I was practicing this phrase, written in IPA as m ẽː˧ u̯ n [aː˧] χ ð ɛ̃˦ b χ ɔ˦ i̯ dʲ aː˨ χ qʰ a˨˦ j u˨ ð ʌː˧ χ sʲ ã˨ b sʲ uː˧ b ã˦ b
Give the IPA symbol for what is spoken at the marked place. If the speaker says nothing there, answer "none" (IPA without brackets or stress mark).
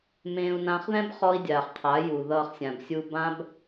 ãː˧